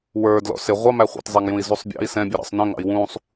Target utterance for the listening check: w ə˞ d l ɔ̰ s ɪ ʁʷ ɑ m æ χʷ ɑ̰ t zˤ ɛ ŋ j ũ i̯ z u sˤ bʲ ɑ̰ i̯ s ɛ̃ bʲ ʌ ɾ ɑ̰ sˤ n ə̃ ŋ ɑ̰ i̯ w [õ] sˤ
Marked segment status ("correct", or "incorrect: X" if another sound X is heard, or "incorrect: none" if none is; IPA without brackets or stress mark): incorrect: ũ